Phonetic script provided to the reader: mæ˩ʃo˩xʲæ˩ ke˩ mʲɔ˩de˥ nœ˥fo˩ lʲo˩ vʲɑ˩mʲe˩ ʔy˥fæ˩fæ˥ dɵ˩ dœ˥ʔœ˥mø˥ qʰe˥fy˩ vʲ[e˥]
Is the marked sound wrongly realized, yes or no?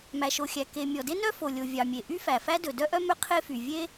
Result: no